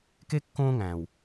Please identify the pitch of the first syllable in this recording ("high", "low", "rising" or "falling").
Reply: high